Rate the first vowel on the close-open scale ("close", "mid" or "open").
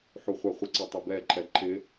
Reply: close